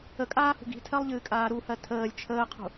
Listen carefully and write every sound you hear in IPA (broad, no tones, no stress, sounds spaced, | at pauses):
ə kʼ aː h ṳ ɡ i̤ tʰ ɜ lˠ ʎ ɨː kʼ aː ɾ u h ɜ tʰ əː lʲ t͡ʃʰ əː qʰ ṳ